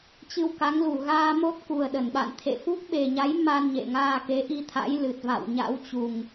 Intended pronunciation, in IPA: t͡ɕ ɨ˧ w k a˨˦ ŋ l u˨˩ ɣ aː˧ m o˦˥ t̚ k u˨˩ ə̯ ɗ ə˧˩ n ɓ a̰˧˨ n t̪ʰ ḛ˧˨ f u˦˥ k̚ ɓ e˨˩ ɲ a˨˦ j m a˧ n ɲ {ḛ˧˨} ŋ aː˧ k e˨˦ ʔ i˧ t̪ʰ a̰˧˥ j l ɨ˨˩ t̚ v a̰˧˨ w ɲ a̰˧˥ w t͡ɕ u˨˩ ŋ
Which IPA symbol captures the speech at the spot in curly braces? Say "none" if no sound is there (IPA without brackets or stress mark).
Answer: ḛ˧˨